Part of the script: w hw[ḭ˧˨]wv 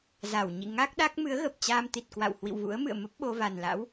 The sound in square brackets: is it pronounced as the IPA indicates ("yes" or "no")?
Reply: yes